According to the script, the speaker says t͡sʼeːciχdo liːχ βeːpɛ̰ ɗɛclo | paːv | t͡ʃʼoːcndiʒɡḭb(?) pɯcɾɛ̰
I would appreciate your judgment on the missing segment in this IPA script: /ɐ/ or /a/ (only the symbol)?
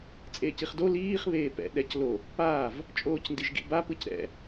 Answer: a